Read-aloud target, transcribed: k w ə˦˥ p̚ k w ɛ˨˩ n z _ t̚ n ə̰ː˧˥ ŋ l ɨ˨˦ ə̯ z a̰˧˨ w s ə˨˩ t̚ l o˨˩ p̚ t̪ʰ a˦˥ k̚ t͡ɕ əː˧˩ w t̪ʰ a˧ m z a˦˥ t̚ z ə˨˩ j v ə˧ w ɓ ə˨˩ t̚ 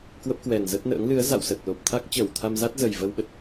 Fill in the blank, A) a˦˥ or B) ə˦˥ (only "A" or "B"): B